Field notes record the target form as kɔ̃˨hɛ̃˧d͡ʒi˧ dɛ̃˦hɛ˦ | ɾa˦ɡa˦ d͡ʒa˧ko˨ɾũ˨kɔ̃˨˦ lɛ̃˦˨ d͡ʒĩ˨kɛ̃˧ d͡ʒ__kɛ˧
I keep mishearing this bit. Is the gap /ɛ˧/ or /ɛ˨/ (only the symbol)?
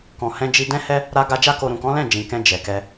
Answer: ɛ˨